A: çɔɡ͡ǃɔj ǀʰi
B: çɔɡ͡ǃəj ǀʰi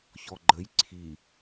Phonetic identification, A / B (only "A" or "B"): B